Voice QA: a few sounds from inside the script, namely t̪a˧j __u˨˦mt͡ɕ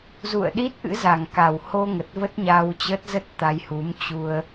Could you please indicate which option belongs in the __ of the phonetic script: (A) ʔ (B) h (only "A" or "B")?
B